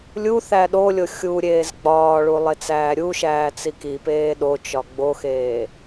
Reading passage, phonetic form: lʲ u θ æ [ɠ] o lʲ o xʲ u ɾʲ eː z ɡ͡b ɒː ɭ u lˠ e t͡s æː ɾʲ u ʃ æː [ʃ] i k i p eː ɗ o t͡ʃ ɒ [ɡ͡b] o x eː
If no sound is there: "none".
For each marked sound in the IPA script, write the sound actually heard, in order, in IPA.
ɗ, t͡s, ɡ͡b

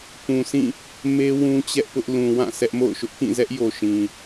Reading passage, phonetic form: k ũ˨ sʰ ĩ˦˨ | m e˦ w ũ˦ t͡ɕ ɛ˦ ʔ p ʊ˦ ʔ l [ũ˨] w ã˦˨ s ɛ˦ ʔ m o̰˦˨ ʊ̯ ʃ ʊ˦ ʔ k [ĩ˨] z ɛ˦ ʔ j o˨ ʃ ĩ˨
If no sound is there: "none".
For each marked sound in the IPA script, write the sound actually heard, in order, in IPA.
ũ˨, ĩ˦˨

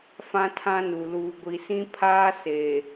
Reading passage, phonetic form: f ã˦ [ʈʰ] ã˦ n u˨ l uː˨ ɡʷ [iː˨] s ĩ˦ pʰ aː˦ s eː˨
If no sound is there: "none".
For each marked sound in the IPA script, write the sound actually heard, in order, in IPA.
tʰ, i˨

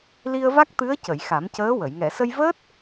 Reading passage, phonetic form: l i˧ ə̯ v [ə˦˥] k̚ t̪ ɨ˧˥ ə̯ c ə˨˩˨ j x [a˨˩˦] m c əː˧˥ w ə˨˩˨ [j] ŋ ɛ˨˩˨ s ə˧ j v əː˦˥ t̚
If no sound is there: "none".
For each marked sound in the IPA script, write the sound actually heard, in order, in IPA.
a˦˥, a˨˩˦, j

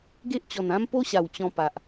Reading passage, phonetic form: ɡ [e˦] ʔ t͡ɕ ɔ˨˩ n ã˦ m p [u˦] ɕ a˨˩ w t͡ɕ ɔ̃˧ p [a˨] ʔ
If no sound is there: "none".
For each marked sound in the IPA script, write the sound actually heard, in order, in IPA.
e˦, o˦, a˨

